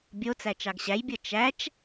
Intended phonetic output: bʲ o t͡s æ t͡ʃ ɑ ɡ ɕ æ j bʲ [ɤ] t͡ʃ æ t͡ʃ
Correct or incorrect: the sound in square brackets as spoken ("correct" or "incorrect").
correct